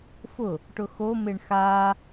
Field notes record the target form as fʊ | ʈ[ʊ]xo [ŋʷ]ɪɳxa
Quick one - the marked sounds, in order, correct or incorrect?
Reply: correct, incorrect: m

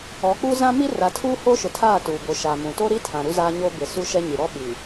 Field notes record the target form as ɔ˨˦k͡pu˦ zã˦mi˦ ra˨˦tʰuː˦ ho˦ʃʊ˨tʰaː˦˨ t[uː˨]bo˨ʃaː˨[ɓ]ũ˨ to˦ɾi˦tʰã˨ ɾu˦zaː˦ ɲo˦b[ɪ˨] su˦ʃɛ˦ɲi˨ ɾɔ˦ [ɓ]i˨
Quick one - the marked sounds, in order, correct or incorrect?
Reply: correct, incorrect: m, correct, correct

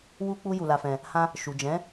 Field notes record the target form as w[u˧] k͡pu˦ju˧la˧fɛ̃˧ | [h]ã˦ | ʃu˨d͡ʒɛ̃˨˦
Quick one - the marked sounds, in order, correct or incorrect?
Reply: incorrect: u˦, correct

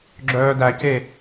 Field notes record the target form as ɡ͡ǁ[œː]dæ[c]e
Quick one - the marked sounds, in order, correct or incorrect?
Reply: correct, correct

